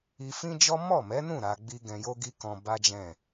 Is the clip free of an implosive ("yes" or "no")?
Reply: yes